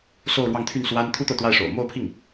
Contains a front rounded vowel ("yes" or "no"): yes